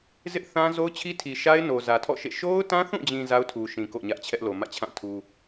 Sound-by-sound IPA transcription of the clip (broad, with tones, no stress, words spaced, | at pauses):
zɪ˦ʔθã˦ zo˦ʊ̯t͡ɕʰi˦tʰi˨ʃa˦ɪ̯ no˨zä˨tʰɔ̰˦˨ʃḛ˦˨ ʃo˦ʊ̯tã˦θũ˦˨d͡ʑĩ˨ za˦ʊ̯tʰu˨ʃĩ˨ ko̰˦˨ɲä˦ʔt͡ɕʰɛ˦ʔ lo˨mä̰˦˨t͡ɕʰã˦˨tʰu˦